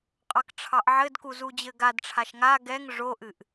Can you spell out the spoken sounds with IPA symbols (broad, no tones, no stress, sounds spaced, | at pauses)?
qʼ ɑ k ʈ͡ʂʰ ɑ ʔ ʕ ɘ d k u z u d͡ʑ ɘ ɡ a d ʈ͡ʂʰ a ʃ ŋ a ɡ ɛ ŋ ʐ o ʔ ɨ ʔ